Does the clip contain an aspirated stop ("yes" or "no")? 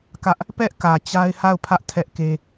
yes